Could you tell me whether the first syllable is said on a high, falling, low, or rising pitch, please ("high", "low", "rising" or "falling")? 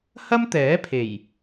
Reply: high